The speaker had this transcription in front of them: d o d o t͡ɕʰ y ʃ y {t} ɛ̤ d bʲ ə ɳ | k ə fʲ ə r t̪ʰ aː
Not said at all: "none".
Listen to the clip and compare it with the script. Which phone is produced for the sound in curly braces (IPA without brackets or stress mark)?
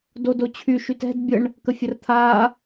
t